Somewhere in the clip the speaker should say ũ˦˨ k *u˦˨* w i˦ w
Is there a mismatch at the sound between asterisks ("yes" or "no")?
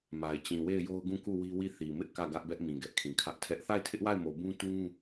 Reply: no